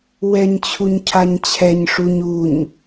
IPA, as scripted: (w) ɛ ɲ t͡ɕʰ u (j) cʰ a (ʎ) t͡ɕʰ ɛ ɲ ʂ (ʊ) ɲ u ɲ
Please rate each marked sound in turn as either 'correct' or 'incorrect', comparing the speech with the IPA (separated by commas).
correct, incorrect, incorrect, incorrect